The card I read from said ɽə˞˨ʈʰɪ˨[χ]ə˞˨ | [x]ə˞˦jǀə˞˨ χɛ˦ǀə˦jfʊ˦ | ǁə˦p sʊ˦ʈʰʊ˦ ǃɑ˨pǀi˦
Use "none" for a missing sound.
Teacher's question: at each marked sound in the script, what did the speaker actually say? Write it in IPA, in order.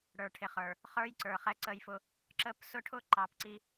χ, χ

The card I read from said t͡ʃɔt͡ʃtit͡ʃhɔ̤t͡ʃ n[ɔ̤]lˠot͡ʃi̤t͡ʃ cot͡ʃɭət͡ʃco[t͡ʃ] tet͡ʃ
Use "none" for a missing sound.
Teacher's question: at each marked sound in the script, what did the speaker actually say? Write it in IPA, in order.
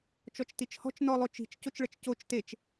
ɔ, t͡ʃ

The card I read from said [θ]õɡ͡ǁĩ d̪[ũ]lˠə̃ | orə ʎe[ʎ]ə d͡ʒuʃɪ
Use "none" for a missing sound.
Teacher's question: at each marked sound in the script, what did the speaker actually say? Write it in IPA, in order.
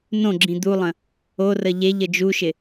n, u, ʎ

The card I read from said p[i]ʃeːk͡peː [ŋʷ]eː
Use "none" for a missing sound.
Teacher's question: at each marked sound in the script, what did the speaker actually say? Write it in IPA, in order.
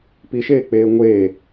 i, ŋʷ

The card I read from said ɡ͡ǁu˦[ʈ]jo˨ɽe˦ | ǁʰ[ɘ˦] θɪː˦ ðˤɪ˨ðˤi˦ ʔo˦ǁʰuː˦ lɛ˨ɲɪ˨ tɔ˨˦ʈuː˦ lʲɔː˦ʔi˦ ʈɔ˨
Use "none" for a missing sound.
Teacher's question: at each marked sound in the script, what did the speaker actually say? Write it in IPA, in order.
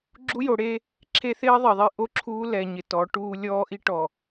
none, e˦

